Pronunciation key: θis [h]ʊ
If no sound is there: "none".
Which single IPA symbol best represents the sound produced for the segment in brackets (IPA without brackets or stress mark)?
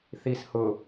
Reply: h